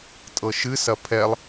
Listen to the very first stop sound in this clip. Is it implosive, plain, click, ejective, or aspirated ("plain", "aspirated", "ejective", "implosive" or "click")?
ejective